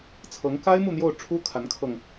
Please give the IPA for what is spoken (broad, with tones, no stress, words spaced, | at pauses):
t͡sʰɤ˧˥ŋka˥ɪ̯ mu˥˧n̪jo˥˩ʊ̯ʈ͡ʂʰu˥ kʰa˧˥nkʰɤ˧ŋ